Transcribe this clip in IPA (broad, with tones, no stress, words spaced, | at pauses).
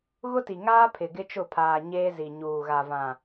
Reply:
ɣʊ˦ti˨ ŋaː˦pʰɪ˨ ɡɪ˦t͡ʃʊ˦˨pʰaː˨ ɲeː˦zi˨ ɲuː˨ ɣa˨ vã˨